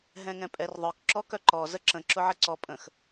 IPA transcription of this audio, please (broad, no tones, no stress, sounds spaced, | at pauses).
ɦ ɛ̃ ŋ ɛ̃ pʼ ɛ r ðˤ œ k ǁ ɔ k œ ǃ ɔ z ə ǁ ə̃ ǁ ʊ ʕ ə ǀ ɔ pʼ ə̃ x